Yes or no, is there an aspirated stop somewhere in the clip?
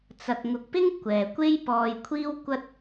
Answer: yes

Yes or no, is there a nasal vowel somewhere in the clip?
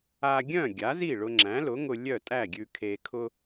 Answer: yes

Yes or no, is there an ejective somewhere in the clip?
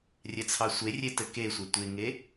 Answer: no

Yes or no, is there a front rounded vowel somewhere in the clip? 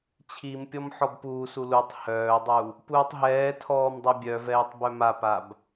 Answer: yes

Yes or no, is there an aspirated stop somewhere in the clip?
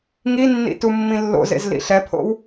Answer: yes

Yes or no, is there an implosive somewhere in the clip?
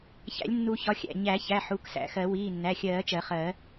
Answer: no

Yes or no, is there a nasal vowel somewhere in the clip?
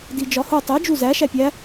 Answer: no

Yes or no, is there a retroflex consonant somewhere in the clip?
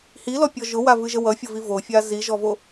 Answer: no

